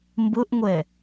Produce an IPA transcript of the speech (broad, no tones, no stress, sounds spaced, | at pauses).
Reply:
m b ʊ ʔ ŋʷ ɛ